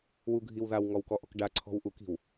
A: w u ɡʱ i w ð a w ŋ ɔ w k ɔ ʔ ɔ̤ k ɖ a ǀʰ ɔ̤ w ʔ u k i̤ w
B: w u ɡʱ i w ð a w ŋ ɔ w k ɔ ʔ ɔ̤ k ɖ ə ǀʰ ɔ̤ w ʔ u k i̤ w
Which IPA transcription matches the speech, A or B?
A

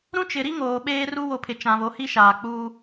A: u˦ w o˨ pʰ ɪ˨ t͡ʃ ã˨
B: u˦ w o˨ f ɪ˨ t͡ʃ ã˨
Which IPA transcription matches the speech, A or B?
A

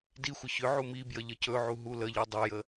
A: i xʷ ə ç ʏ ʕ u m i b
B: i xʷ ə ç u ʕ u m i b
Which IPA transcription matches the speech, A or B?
A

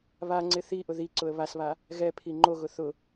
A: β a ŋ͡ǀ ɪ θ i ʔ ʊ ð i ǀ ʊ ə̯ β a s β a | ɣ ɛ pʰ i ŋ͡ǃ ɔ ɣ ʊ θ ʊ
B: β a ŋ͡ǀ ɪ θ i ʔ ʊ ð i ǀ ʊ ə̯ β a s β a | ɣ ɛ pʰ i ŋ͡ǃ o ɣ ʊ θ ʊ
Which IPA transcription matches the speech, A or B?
B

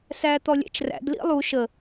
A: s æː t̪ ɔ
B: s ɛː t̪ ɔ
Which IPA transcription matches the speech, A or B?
A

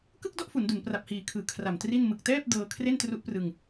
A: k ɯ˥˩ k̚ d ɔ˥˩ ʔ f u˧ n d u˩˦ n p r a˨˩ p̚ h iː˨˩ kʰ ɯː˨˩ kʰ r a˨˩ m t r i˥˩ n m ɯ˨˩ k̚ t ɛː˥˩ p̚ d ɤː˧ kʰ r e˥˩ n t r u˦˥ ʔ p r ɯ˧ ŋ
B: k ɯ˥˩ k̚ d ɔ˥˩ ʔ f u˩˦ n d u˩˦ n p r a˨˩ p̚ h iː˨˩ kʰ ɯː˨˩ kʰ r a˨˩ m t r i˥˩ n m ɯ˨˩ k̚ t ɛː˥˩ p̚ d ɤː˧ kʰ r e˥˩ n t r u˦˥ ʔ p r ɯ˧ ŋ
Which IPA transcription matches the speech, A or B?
B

